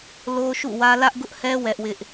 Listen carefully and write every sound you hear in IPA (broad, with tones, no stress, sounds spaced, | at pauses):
l o˦ ʃ ṵ˦˨ w ä˦ l ä˦ ʔ ɡ ʊ˦ ʔ h ɛ˦ w ɛ˦ ʔ w ɪ˦ ʔ